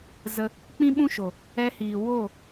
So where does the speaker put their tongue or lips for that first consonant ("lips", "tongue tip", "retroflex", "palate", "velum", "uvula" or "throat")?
tongue tip